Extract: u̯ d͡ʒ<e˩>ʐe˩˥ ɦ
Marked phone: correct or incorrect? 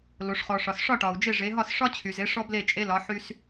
incorrect: e˥˩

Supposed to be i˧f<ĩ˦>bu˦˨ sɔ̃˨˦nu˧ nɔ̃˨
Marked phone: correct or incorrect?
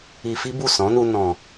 incorrect: i˦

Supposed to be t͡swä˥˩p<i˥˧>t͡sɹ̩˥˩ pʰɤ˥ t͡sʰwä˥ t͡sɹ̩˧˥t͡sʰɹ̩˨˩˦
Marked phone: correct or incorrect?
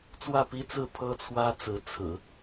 incorrect: i˥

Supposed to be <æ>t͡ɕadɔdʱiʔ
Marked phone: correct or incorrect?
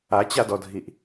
incorrect: a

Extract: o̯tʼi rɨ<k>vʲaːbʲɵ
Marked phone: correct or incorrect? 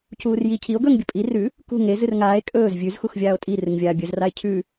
incorrect: ŋ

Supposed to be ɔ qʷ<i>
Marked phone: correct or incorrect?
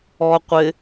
incorrect: ɪ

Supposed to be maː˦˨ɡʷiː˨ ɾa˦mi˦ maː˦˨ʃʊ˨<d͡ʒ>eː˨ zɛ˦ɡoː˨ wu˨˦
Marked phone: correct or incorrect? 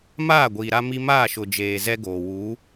correct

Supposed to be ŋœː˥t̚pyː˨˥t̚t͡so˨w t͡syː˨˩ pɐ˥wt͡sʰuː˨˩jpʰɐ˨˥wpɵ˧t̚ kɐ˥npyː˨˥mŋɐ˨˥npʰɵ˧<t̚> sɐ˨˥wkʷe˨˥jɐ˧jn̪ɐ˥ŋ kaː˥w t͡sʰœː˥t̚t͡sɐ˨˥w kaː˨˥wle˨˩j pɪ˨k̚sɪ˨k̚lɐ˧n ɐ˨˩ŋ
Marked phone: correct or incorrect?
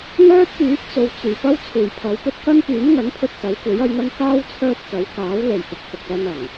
correct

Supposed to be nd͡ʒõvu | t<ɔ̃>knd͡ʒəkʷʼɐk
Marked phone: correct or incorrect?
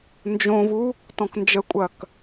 correct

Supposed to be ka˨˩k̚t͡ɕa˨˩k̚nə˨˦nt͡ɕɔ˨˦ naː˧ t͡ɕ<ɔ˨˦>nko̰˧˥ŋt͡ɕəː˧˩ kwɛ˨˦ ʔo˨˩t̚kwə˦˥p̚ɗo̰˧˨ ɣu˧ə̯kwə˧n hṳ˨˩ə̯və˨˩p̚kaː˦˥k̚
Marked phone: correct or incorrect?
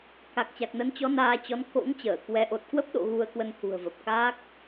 correct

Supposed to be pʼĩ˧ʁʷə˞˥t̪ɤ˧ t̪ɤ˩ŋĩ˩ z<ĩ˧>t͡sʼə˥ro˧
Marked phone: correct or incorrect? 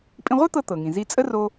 incorrect: i˧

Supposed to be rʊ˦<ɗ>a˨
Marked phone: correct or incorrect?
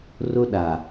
correct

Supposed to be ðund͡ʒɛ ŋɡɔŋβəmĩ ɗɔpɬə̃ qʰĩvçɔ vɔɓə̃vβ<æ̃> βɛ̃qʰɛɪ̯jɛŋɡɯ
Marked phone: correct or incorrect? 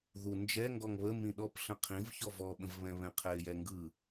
incorrect: ɛ̃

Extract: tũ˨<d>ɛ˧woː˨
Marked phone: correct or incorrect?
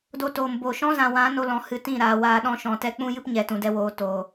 correct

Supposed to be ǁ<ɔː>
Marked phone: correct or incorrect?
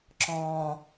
incorrect: ɔ̃ː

